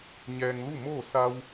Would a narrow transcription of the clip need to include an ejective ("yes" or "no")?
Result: no